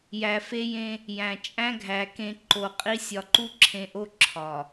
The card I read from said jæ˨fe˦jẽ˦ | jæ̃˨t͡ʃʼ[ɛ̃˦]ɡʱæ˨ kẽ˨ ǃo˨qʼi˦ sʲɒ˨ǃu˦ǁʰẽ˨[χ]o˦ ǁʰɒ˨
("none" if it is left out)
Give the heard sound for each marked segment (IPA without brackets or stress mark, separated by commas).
æ̃˦, ʔ